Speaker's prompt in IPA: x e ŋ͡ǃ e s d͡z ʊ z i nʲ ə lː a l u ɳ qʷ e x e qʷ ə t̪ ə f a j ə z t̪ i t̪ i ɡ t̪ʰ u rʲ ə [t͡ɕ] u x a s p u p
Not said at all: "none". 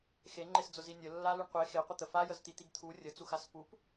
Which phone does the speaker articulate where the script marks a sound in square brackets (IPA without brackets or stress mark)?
t͡s